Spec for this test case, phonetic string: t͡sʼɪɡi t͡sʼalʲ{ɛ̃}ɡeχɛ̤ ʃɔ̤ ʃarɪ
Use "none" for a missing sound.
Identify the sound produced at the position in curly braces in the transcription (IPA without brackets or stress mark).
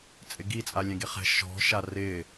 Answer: ɛ̃